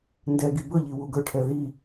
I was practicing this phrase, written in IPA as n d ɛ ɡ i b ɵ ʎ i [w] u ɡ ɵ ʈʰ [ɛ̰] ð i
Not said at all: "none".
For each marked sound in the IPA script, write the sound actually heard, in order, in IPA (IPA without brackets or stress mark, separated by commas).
w, ɛ